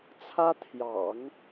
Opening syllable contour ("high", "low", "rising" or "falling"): high